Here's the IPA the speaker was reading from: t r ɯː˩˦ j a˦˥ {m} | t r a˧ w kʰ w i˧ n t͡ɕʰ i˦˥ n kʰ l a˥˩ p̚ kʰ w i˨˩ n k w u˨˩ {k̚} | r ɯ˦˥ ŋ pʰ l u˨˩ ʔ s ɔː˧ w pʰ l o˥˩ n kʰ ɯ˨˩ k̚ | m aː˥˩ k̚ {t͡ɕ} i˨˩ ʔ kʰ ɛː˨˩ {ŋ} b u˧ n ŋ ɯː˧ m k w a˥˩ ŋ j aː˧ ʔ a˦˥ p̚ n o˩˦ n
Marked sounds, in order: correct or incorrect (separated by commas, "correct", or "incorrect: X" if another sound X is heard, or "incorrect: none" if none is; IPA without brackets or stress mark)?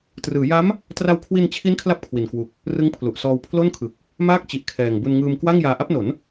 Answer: correct, correct, correct, correct